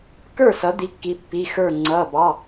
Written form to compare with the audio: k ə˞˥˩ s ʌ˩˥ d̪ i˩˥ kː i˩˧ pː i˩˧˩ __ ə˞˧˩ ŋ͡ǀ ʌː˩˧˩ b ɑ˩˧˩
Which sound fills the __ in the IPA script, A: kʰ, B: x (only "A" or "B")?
B